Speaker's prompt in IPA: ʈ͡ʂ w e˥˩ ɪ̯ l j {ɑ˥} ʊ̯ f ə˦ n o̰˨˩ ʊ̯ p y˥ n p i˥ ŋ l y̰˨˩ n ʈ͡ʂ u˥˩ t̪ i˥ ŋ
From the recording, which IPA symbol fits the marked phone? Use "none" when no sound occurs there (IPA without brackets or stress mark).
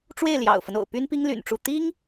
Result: ɑ̰˨˩